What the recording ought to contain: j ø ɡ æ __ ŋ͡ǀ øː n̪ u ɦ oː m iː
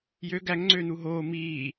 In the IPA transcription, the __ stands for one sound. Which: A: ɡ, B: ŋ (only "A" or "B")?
B